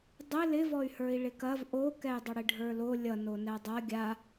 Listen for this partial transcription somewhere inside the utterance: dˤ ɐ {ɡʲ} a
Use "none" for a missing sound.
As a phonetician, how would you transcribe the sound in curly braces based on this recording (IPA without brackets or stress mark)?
ɡʲ